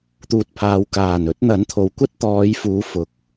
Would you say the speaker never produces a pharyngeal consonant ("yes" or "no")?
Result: yes